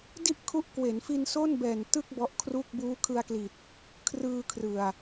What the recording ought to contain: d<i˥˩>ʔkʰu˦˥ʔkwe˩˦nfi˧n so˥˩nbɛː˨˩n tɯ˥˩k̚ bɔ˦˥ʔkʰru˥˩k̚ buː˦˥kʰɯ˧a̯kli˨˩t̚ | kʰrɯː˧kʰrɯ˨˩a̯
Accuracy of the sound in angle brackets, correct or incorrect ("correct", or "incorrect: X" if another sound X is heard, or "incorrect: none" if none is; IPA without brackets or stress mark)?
correct